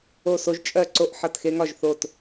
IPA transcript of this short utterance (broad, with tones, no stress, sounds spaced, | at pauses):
o˦˨ s o˦ ʒ t͡ʃʼ ɜ˦˨ ǀ o˦˨ ʔ ħ ʌ˦˨ t x e˦ ŋ ɒ˦˨ ʒ θ o˦˨ t